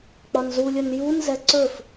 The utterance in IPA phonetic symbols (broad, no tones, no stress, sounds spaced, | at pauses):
k͡p ɒ n z u lʲ ɵ n j u n z ɛ ǀ ɵ f